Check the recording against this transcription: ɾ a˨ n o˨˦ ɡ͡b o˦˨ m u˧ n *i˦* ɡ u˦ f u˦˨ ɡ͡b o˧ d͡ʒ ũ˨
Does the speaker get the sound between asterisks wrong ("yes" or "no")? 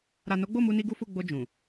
no